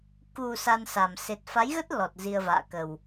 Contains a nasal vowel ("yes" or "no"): no